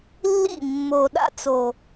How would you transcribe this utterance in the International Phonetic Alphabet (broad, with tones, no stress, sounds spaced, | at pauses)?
lː ḭ˦˨ mː o˨ ɗ a̰˧ t͡s o˨